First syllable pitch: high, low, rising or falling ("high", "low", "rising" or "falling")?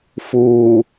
low